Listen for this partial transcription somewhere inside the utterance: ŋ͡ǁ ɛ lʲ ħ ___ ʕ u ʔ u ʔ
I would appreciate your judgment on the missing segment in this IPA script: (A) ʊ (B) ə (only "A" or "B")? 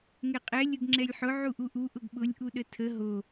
A